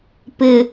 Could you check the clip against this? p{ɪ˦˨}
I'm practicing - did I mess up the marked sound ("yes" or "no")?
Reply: yes